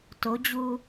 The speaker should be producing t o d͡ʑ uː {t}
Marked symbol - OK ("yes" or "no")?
no